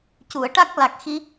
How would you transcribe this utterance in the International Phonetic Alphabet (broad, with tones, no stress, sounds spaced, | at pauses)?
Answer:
c u˨˩˨ ə̯ ʈ a˦˥ k̚ l a˨˩ k̚ x i˧